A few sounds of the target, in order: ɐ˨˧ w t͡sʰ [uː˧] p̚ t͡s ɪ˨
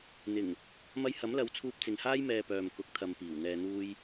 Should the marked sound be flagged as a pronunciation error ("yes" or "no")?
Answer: no